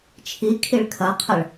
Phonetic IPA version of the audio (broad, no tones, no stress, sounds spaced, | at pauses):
t͡ʃʰ i kʰ i ɭ kʰ ɐ qʰ ə ɭ